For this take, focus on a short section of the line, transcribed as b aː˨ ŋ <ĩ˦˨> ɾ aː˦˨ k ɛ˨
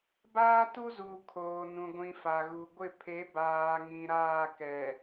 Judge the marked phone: incorrect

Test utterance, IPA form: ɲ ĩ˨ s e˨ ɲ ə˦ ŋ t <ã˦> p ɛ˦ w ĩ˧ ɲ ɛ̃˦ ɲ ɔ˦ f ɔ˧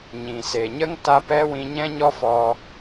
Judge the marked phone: incorrect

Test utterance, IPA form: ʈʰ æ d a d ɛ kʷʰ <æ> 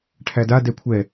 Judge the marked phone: incorrect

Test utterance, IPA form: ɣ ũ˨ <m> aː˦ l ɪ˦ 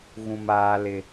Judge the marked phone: correct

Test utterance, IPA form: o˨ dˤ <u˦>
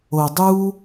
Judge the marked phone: correct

